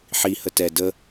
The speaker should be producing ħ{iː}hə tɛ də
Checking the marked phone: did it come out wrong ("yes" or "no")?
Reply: yes